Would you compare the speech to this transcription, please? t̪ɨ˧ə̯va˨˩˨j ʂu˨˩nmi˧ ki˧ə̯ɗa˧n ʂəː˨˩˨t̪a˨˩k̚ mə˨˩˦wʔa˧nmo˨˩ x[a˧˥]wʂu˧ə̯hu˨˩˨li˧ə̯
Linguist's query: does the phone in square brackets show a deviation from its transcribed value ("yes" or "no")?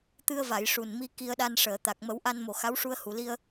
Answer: no